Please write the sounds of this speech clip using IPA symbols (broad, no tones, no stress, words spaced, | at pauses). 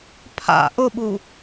pʰa̰ ʔʊɓu